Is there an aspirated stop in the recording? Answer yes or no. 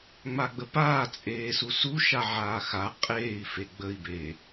no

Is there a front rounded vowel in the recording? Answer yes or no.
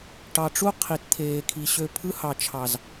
yes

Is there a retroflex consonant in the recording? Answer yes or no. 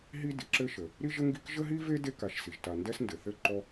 no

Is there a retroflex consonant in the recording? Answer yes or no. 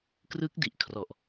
no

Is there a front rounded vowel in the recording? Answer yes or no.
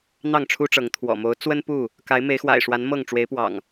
no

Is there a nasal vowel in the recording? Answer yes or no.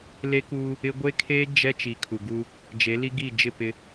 no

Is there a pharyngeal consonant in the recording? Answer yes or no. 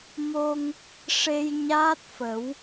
no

